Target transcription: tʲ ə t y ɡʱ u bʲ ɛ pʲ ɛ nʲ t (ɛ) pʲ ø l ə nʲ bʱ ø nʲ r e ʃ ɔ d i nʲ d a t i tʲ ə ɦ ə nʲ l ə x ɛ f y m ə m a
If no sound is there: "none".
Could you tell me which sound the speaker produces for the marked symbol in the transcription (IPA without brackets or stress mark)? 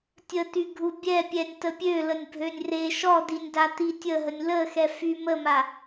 ə